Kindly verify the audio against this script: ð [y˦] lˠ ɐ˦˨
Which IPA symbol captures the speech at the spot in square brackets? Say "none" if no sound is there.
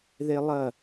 e˦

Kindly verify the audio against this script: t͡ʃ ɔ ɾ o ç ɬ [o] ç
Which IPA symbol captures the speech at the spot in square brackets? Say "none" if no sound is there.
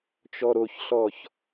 ɔ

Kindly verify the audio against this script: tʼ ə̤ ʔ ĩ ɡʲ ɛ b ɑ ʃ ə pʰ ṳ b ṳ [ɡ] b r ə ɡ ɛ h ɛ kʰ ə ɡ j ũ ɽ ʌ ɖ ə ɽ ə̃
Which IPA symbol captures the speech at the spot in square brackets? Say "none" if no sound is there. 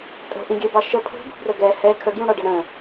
none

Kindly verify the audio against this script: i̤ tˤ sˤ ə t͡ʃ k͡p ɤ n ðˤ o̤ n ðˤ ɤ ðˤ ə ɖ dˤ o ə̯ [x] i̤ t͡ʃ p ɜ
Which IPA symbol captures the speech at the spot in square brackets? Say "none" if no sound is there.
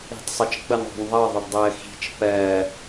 x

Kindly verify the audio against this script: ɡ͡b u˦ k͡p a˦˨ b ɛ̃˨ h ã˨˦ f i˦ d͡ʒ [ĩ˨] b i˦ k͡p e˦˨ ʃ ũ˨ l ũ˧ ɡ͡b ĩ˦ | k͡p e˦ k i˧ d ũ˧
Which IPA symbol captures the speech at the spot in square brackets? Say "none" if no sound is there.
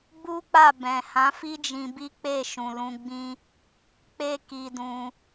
ĩ˧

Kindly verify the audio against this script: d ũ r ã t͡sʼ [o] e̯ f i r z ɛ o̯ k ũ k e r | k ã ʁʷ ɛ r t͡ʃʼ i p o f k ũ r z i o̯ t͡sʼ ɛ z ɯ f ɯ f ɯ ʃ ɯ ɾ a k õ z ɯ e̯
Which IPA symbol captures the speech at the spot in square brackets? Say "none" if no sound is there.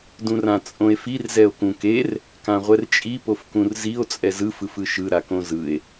õ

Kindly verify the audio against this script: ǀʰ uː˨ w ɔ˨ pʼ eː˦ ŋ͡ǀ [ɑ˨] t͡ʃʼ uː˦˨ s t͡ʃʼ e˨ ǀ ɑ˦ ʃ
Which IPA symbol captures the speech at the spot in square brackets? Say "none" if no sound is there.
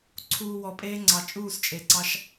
ɑ˨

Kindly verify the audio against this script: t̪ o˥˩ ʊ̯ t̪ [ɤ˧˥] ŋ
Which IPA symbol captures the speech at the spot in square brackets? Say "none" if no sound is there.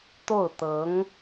ɤ˧˥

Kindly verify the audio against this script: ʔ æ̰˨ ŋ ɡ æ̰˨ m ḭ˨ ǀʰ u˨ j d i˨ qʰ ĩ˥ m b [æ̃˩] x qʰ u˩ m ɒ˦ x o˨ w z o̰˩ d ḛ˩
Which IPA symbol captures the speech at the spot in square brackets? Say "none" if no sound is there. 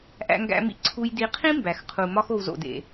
æ˩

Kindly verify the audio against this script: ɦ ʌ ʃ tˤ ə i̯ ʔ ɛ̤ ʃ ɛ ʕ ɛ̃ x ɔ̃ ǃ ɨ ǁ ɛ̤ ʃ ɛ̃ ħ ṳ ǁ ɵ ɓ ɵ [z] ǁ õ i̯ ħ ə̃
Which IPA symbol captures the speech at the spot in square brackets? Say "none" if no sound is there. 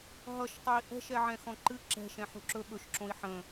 ʃ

